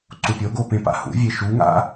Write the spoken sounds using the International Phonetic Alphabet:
ǀ u pʲ o ɡ o p ẽ p a̰ h ṵ vʲ e ʃ u ŋ a̰

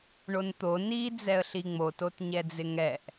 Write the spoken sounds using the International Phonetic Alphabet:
ɳ o n t̪ o n i d͡z ɛ ə̯ ɬ i ŋ͡m o t o t ɲ ɛ d͡z ɪ ŋ ɛ ʔ

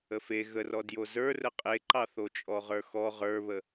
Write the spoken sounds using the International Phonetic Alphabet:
ə f e ɣ ə r ɔ d j o z ə˞ r ə qʼ e ǃ ɑ θ o t͡ʃʼ ɔ ʁ ə˞ x ɔ ʁ ə˞ β ə

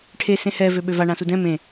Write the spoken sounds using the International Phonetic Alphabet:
ʈʰ e s ẽ h ɛ v ø ɓ ø v a ɳ ã s u d ɛ̃ m ẽ

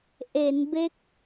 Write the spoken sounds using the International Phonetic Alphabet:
ʔ e˩˦ n b e˦˥ k̚

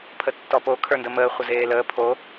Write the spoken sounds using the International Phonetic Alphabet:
pʰ ə tː ɔ p o kʰ ə˞ n d ə m əː χʷ ə z eː l əː pʰ o

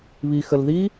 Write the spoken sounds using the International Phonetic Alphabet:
β i x ə l ð i

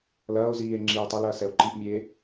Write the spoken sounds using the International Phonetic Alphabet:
l ɐː o̯ z iː e̯ ŋ͡ǁ iː e̯ tˤ ɐ l ɐː s ɛ o̯ ǃ i ʔ mʲ eː

